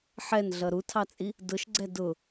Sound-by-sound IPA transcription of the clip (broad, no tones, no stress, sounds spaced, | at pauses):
ħ ɛ n ɮ ʌ ɾ u tʰ ɑ t͡sʼ i | d ʊ ʃ ɡ͡ǀ ɛ d ʊ